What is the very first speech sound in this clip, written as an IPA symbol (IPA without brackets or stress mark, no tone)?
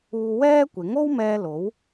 uː